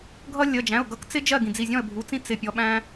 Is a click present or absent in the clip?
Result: absent